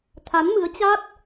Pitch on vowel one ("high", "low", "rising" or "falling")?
rising